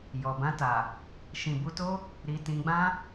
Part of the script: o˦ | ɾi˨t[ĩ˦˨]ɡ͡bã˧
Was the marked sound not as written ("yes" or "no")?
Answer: yes